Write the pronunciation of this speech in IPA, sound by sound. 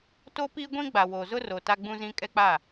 t o˦ p iː˦ ɡʷ ĩ˦ ɡ͡b a˨ w o˨ z ʊ˦ r o˨ t a˦ ɡ͡b ũ˦ z ĩ˦ kʼ ɛ˦ k͡p a˦˨

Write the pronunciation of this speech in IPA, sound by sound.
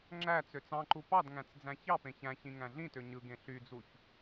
ŋ͡ǁ æ t͡s ø t͡s ɑ̃ ǃ u p ɑ d ŋ æ̃ t͡s d͡z æ̃ ç ɑ p ẽ ç æ̃ ç ĩ ŋ æ̃ ɮ ĩ t ø ɲ ɯ ɡ ẽ ɬ y d͡z u ç

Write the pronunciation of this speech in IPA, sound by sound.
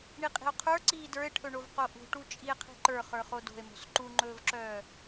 ɳ i qʼ i̤ o̯ qʰ ə˞ ǀ iː d ə˞ e̯ ʈʰ ɵ ɳ o v q o ʔ ṳ ʈ u t͡ʃʼ i e̯ qʰ i̤ ǃ ə˞ χ ə˞ χ o d o̤ e̯ m o̤ s ǃ u ŋ͡ǃ ɵː v ǁ œː

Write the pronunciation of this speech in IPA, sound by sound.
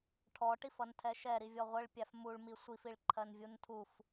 ʈʰ ɔ ʈ i f ʌ n tʰ ɛ ʃ ɛ ɾ i vʲ ɔ ʁʷ ə ɭ pʲ æ f m u ɭ m i sʷ i f i ɭ ǃʰ ɜ n vʲ u n tʰ u f

